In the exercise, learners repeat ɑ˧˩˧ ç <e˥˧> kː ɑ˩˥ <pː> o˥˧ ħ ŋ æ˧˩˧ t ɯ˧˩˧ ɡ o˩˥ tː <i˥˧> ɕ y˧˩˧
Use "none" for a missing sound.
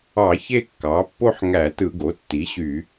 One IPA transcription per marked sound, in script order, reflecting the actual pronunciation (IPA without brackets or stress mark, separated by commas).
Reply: e˥˧, pː, i˩˥